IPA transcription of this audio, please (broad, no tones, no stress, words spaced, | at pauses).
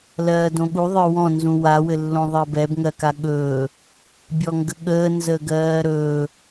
lɜːdõɠu ðˤə˞wɔ̃ nzũwa wɘlːõðˤɜbɛb ŋɜkaɠɵː | bʲɔŋɡəɠəː nzəːɡɜːɾɵː